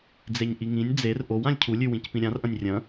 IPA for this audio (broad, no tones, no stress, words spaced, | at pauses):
d͡zeɲʔiŋĩnʲ d͡zer ʔowãlʲ cʰulʲʉwĩc pĩɾʲãrʔɐ̃nʲ rʲɐ̃